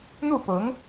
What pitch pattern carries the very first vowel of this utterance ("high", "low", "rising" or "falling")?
falling